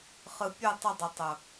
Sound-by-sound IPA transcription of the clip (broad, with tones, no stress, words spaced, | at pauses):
χɯ˧ pʲɯ˦˨tˤə˦˨dˤʊ˨ tˤʊ˨